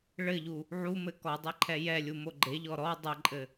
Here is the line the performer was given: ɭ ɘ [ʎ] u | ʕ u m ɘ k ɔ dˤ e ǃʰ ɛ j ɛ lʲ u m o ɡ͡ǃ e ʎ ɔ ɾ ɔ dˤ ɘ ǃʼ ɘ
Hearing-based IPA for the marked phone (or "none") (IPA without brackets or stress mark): ʎ